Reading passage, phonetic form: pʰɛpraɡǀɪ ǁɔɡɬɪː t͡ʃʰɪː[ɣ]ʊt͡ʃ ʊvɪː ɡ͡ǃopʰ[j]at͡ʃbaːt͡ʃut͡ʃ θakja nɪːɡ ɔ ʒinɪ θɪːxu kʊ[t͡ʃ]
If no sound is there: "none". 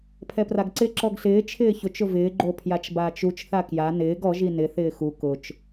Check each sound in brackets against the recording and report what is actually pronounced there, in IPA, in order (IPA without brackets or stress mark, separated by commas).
ç, j, t͡ʃ